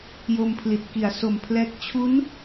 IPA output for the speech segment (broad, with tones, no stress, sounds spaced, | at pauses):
j o˧ m pʰ l i˨˩ t̚ k i˩˦ a̯ s o˨˩ m pʰ l ɛː˦˥ k̚ t͡ɕʰ u˦˥ n